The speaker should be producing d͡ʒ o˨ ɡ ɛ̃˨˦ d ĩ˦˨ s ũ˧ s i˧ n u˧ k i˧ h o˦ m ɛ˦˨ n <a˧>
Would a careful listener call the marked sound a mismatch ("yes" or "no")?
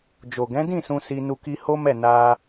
no